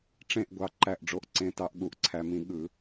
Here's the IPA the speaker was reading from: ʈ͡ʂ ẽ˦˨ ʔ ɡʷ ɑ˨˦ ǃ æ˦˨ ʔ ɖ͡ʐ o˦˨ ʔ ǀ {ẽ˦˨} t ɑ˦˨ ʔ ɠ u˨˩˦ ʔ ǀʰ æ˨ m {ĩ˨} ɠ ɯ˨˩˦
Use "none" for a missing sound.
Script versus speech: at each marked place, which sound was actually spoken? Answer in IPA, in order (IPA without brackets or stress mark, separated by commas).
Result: ẽ˦˨, ĩ˨˩˦